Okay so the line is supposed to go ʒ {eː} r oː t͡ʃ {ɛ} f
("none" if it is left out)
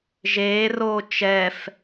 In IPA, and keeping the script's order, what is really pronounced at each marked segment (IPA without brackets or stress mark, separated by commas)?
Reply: eː, ɛ